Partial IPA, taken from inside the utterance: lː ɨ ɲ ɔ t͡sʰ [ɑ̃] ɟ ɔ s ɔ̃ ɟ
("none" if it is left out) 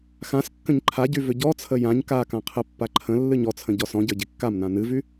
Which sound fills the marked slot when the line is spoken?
ə̃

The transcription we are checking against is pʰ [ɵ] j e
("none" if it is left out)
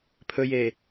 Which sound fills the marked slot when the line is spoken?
ɵ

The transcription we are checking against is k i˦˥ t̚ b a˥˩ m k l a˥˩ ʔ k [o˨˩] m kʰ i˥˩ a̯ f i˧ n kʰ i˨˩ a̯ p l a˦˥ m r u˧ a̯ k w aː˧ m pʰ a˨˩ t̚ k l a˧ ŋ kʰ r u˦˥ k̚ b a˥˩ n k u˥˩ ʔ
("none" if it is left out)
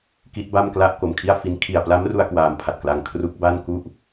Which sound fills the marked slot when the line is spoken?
o˨˩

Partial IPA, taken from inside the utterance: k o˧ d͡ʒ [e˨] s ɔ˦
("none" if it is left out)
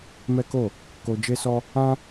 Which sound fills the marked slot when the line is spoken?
e˦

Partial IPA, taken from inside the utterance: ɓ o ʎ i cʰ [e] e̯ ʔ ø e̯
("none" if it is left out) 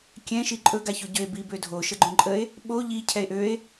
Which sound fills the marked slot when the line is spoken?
ɛ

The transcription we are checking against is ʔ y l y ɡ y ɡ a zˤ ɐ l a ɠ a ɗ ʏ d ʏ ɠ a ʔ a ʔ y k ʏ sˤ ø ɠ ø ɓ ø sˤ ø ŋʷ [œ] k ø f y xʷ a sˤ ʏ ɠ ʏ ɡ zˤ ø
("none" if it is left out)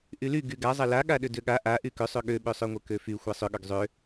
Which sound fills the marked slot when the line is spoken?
œ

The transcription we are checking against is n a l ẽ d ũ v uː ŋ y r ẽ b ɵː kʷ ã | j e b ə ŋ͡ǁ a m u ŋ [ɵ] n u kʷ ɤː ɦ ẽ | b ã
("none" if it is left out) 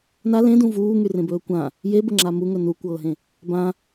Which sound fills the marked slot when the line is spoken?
ɵ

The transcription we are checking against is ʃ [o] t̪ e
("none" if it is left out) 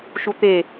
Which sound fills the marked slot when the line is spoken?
u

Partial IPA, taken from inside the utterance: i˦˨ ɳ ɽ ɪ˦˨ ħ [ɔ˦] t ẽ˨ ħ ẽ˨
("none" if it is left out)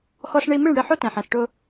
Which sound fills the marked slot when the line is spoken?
o˦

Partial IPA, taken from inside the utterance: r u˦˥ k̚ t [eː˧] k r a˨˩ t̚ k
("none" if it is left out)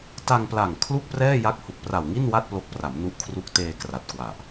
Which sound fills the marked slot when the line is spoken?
eː˧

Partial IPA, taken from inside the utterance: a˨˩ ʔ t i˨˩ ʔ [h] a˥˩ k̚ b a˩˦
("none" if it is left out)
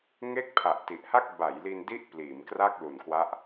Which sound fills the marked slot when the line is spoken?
h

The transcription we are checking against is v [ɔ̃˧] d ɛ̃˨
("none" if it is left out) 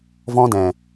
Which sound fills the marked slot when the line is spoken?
ɔ̃˧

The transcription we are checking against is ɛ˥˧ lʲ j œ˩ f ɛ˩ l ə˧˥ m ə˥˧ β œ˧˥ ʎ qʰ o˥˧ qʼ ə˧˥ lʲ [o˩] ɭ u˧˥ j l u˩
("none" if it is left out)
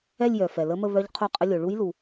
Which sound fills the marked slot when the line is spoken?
o˩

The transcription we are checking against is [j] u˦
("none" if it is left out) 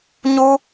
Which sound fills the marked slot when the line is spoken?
ɲ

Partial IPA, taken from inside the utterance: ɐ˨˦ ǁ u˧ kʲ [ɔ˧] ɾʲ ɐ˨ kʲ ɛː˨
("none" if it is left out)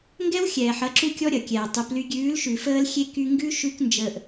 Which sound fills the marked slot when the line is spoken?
ɔ˧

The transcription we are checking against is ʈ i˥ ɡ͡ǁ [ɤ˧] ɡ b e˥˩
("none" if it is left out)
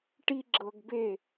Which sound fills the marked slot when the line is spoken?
ɤ˧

